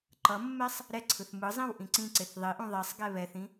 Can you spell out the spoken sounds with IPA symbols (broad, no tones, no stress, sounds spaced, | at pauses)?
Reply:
ǃ ʌ mː ɛ sˤ | ɾ ɛ ǀʰ ɯ θ m ɯ zˤ ĩ w ʔ ĩ ǀ ĩ ǀ e θ ðˤ i ʔ ũ ðˤ e sˤ ɡ ɛ β ɛ θ ĩ